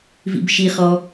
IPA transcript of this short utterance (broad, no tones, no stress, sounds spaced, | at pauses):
v ḭ b ʃ i χ ɔ